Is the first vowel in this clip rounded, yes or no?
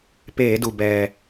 no